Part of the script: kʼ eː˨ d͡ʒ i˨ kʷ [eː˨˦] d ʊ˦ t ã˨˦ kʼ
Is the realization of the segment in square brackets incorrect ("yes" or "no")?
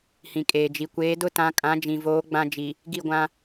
no